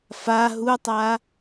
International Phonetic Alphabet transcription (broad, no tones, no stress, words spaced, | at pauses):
fa ɦutˤa